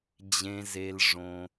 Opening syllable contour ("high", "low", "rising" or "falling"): low